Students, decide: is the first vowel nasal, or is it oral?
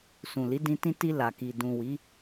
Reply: nasal